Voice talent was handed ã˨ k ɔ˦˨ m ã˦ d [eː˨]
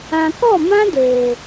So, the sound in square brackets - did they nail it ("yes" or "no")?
yes